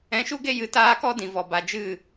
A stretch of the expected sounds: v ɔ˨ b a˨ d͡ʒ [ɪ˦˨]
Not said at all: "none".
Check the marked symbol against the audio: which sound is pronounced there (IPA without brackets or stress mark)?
ɨ˦˨